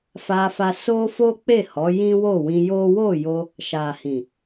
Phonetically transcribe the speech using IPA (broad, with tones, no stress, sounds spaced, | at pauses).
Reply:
f a˧ f a˧ s o˦ f o˦ k͡p e˦˨ h ɔ˨˦ j ĩ˦ w o˦˨ w ĩ˧ j o˦ w o˦˨ j o˧ | ʃ a˨ h ĩ˨